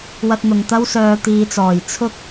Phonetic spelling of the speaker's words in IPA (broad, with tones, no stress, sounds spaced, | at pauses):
w ɐ˧ t̚ n̪ ʊ˨ ŋ t̪ ɐ˥ w s œː˨ t̪ iː˨ t͡s ɔː˨˩ j t͡sʰ ʊ˥ k̚